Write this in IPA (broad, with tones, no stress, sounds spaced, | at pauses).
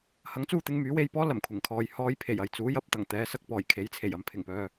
h ɐ˨˥ ŋ t͡s uː˧ t̪ ɪ˨˧ ŋ m yː˨˥ w e˧ j p ɔː˥ l ɐ˨˩ m kʷʰ ɪ˨˩ ŋ kʰ ɔː˨ j h ɔː˧ j pʰ e˨˩ j ɐ˨ j t͡s uː˨˥ j ɐ˧ p̚ t̪ ɐ˨˩ ŋ t̪ ɛː˨˧ s ɐ˧ k̚ p ɔː˨˩ j kʰ e˨˥ j t͡sʰ e˨˩ j ɐ˨ m pʰ ɪ˨˩ ŋ p œː˨